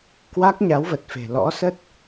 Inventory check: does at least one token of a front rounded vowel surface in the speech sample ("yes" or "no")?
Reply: no